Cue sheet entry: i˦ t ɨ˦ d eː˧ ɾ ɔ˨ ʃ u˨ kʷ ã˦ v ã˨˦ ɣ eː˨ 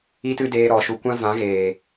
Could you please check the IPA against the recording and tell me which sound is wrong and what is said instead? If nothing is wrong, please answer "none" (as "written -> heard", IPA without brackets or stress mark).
none